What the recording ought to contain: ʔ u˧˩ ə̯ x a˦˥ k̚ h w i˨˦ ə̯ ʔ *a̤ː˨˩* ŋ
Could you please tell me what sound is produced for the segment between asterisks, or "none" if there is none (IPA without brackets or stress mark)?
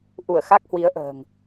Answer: ə̤ː˨˩